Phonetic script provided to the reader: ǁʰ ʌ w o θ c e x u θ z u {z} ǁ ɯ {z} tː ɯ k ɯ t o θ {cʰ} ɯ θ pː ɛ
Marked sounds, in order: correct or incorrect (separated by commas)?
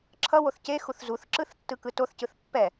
incorrect, incorrect, incorrect